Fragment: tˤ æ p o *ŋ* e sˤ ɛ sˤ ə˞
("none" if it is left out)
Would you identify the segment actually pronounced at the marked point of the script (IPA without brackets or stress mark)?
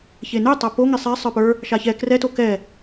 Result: ŋ